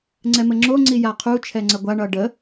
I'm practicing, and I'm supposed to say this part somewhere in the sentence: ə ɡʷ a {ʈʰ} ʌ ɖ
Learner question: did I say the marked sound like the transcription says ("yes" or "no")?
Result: no